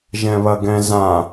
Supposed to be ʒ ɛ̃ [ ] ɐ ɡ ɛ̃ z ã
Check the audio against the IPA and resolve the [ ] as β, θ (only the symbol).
β